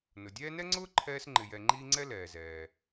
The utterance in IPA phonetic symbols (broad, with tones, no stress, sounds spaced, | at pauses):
n ʊ˩ dʲ ɛː˦ n ɛ˥ ŋ͡ǀ ʊː˥ ǃʰ ɛː˦ s ŋ͡ǃ ɪ˨ j ɛ˨ ŋ͡ǃ iː˦ ŋ͡ǀ ɛ˥ l ɛː˩ z ɛː˩